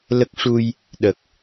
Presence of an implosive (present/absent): present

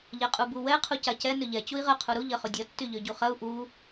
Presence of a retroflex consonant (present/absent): absent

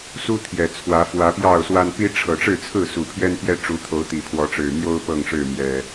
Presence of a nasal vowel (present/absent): absent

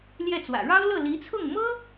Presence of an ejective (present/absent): absent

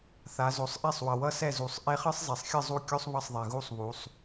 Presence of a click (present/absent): absent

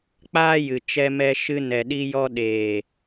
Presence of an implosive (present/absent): present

